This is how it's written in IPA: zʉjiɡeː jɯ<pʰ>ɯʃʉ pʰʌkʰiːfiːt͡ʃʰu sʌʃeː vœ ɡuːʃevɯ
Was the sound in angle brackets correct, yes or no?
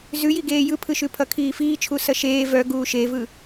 yes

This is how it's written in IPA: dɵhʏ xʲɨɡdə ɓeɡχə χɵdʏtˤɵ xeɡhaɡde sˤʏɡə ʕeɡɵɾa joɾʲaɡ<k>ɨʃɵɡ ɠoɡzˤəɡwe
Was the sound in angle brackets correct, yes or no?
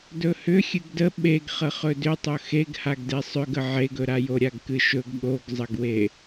yes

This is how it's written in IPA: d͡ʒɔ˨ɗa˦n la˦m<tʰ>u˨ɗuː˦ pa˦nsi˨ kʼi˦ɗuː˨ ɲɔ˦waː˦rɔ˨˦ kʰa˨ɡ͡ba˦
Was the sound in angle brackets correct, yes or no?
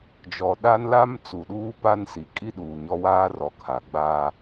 no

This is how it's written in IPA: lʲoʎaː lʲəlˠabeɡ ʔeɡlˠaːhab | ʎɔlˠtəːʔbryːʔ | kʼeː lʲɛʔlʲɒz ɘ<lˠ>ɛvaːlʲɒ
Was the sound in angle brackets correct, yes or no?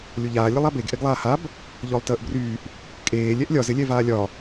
no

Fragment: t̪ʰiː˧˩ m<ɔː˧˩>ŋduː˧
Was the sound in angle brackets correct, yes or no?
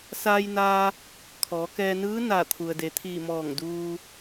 yes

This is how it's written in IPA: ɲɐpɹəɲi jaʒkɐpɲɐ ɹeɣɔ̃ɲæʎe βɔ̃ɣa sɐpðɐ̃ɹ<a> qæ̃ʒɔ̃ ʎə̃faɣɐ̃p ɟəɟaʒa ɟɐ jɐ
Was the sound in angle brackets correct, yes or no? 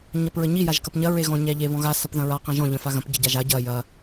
yes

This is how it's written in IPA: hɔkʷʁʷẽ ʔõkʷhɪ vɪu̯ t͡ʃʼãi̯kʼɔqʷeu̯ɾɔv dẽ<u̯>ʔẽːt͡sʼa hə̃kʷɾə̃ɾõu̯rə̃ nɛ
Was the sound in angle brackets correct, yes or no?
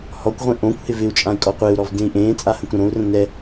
no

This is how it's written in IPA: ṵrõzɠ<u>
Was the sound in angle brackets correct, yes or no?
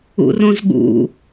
no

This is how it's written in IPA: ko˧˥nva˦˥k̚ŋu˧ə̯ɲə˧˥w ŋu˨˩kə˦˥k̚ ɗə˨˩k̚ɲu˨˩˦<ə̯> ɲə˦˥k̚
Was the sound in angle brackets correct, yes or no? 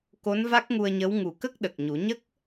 no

